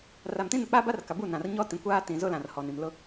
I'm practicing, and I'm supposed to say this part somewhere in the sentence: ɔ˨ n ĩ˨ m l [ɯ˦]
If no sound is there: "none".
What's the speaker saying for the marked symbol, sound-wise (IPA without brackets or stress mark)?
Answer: ʊ˦